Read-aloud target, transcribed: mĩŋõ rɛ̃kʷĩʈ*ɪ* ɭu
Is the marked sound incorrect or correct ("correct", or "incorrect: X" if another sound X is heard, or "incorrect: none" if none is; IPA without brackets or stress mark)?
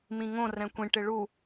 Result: correct